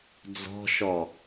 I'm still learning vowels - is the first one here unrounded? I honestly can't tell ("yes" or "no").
no